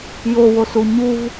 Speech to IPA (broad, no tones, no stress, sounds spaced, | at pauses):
j o w o s u ɲ u v